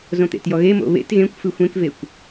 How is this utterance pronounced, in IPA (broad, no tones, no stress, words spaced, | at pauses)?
zõt̪ḛtjɔɣe mo̰βḛt ɣẽkʷfɨ xʷẽkvekʷ